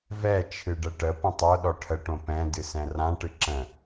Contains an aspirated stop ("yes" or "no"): yes